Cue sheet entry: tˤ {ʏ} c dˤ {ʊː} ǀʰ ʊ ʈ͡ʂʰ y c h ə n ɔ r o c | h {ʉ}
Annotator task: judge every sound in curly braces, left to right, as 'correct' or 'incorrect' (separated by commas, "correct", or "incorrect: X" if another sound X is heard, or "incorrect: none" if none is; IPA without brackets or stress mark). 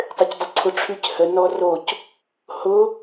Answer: correct, incorrect: ʊ, incorrect: ʊ